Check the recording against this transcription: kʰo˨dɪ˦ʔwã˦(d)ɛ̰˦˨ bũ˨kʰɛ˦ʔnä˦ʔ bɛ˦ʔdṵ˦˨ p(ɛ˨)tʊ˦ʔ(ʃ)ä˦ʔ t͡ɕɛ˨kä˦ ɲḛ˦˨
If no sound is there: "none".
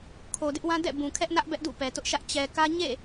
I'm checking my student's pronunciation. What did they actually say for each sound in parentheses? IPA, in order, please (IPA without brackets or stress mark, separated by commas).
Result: d, ɛ˨, ʃ